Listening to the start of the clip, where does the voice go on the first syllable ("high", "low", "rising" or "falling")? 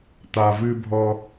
low